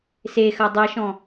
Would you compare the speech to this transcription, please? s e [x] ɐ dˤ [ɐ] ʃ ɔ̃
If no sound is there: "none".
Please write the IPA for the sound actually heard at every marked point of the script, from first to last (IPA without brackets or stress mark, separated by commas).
x, ɐ